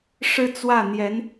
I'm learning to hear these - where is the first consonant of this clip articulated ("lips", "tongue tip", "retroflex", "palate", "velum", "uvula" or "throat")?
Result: retroflex